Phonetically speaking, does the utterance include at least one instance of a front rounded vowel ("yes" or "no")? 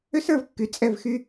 yes